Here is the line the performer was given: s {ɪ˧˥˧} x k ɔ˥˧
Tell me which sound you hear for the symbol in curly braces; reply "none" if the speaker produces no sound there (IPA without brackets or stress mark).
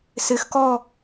ɪ˧˥˧